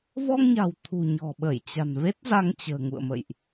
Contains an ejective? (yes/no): no